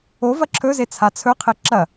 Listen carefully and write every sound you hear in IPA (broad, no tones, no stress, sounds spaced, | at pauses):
o v ɐ ǁʰ ɵ z e t͡sʰ a t͡sʰ ɵ qʰ e ǁ ɐ